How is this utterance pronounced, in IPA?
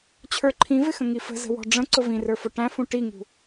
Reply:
t͡ɕʰ ə˞ ǃʰ ĩ v ɪ x ə̃ ŋ i f ə̤ z ə̤ w ɔ̤ ɖ͡ʐ ə̃ ǀ ʊ v ĩ r ə˞ f ʊ ʈ æ̃ f ũ ʈ i ŋ ṳ

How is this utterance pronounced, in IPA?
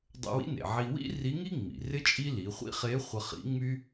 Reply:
dˤ ə̰˧ w ḭ˧˥ n ḛ˩ ʕ i˧ w ḭ˥ r i˧˥ ŋ i˥ ŋ͡m ḭ˩ r ɪ˥ t͡ʃʼ i˥ l i˩˧ χʷ ḭ˥ χ e˧˥ χʷ ə˧ χ ḭ˧˥ ŋ͡m y˥

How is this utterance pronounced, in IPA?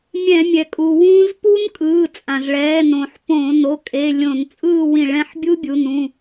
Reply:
mʲ ɛ̃˧˩˧ mʲ ɛ˩ kʼ u˩ w ũ˦˥ z p u˦˥ n kʼ ɯː˩˧˩ t͡sʼ ã˩ z ɭ ɛː˩˧˩ n õ˧˩˧ ħ p õ˧˩˧ n o˩˧˩ kʼ e˩˧˩ lʲ õ˧˩˧ n t͡sʼ ɯː˥˨ w ĩ˧˩˧ ɭ ɛ̃˩˧˩ ħ bʲ u˦˥ bʲ u˩˧˩ n ũ˩˧˩

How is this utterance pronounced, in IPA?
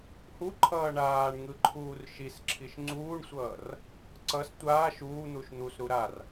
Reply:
h u ǃʰ ʌː ɳ aː ɳ ŋ ɯ ǃʰ uː r ʃ i s ǁʰ i ʃ ŋ͡ǀ uː ɳ sʷ ʌː r | ǀ ʌ s tʷ aː ʃ uː n̪ u ʃ n̪ u s ɾ u ɾ a r

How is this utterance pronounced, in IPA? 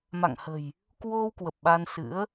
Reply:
m a̰˧˨ ŋ h ə̤˨˩ j | k w o˧ w k w ə˨˩ p̚ ɓ a˧ n s ɨ̰˧˥ ə̯

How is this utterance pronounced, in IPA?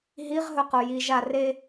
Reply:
ɦ i ʁ ɦ ɵ q o j i ʒ a r e

